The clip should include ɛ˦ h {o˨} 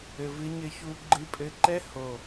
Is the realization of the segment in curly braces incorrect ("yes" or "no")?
no